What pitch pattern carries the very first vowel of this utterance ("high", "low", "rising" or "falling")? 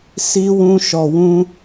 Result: high